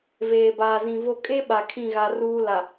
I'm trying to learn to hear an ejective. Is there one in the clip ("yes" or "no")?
yes